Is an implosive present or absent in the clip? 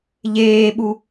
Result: present